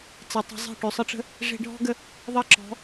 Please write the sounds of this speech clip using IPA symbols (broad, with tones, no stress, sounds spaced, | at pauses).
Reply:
t͡s ɛ˨ tˤ ə̤˧ zˤ e̤˦˨ ʈ ø˨ sˤ ə˧ ʈ͡ʂ ə̤˧ | ʐ e̤˧ ɖʱ ɔ̤˦ ɡ ə˧ | ðˤ ʌ˦˨ ǁ ɔ̤˨˦